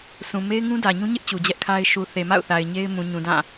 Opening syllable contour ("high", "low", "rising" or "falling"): low